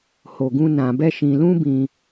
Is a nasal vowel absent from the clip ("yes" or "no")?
no